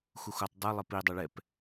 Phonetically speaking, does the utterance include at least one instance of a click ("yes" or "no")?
no